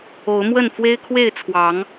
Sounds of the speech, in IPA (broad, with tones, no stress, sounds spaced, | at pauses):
o˨˦ ʊ̯ m w ə˥˨ n f w e˦ ɪ̯ kʰ w e˥˨ ɪ̯ t͡sʰ w ɑ˨˦ ŋ